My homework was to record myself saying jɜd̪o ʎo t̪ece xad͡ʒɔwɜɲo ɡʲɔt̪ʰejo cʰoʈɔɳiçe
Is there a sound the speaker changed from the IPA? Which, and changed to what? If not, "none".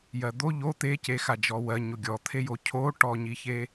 ɳ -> ɲ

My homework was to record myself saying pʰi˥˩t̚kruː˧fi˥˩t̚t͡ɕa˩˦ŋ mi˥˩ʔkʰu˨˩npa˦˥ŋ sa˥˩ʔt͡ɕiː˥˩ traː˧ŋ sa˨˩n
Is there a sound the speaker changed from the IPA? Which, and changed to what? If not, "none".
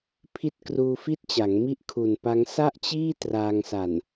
none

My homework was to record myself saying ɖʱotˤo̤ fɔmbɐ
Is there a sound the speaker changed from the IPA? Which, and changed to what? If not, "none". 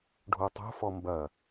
none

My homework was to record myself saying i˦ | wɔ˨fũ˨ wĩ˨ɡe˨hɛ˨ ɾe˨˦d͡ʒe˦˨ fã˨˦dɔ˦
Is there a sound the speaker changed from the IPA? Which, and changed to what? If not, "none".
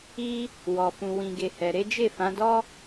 none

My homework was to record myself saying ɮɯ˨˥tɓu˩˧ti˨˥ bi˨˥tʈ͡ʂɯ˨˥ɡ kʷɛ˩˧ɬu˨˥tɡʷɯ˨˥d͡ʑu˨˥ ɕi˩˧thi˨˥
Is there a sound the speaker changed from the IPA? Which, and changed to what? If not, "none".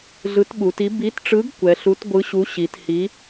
d͡ʑ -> ɕ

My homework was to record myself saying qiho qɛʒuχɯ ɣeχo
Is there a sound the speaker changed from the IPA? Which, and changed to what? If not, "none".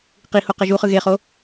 none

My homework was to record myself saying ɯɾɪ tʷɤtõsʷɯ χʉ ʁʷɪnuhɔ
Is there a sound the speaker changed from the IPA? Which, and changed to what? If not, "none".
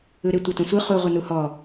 ʉ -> u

